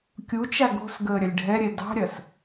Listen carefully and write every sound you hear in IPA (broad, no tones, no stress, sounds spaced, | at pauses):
kʲ u t͡ʃ a ɡ o̤ s ɡ əː ɾʲ ɐ lʲ ɖʱ ɛ ɾʲ ɛ d ɑ̤ ɾʲ ɐ s